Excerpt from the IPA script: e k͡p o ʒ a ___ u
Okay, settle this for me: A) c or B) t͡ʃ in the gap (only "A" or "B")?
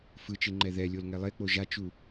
B